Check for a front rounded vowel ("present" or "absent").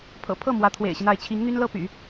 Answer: present